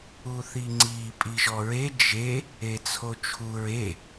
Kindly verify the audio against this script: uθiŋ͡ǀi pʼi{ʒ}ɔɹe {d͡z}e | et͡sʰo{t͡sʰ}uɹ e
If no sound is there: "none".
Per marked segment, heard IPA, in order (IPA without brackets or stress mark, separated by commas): ʒ, d͡ʒ, t͡ʃʰ